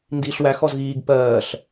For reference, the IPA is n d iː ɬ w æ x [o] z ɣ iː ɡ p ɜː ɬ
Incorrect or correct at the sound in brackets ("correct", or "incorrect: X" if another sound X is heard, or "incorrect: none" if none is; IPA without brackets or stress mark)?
incorrect: ɔ